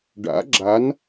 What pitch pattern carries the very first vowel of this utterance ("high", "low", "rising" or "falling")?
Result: rising